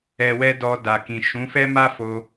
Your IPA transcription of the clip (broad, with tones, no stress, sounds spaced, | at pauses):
ɛ˨ w ɛ˧ d ɔ˧ d a˨ k ĩ˨ ʃ ũ˨˦ f ɛ˦ m a˦ f o˧